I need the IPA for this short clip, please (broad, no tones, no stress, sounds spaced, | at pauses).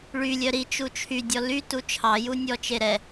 ɭ y lʲ œ ɾ i t͡ʃ u t͡ʃʰ y dʲ ɔ l y t u t͡ʃʰ ɑ j u nʲ ɔ t͡ʃ e ɾ ɛ